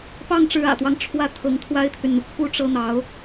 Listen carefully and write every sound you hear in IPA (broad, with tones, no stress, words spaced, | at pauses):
pɑ˥˩ŋʈ͡ʂɻ̩˧˥ä̰˨˩t̪wɑ˦ŋ ʈ͡ʂʰwä˥t̪ʰɤ˧˥ŋ t̪ʰwa˥ɪ̯t̪ʰy˨nn̪u˩ kʰu˥˩ ʈ͡ʂɤ˥n̪ɑ˧˥ʊ̯